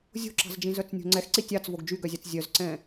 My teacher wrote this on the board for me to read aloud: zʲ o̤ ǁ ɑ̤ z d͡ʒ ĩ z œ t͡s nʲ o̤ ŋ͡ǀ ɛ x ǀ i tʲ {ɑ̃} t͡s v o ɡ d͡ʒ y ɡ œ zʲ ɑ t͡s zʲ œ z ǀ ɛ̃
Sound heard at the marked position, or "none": ɑ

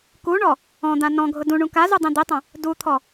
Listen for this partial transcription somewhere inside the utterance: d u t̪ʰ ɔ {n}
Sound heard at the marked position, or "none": none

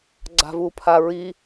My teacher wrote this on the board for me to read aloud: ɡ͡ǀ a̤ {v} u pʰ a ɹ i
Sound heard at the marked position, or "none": v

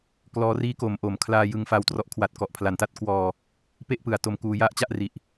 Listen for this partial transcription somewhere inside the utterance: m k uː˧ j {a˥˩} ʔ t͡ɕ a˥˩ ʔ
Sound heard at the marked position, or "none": a˥˩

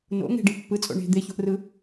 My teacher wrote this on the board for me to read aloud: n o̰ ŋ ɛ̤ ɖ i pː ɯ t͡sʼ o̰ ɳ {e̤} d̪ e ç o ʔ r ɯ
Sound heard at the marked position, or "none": e̤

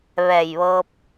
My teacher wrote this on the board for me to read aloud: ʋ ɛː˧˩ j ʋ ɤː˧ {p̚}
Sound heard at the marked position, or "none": p̚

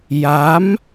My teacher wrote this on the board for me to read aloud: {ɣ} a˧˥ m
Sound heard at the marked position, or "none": j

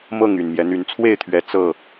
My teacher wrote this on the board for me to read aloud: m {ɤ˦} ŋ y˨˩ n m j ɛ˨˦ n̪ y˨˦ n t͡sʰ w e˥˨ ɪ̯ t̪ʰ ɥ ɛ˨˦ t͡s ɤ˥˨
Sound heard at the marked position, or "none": ɤ˥˨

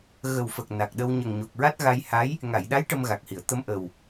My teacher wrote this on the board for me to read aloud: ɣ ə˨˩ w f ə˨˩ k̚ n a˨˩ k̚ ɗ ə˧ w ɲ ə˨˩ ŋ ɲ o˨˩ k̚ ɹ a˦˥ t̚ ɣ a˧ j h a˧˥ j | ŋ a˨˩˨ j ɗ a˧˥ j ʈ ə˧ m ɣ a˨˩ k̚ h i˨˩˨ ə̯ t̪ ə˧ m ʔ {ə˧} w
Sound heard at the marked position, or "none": ə˨˩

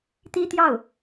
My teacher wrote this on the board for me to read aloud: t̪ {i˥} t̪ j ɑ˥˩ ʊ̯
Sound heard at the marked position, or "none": i˥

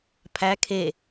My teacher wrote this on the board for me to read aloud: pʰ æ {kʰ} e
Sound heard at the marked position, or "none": kʰ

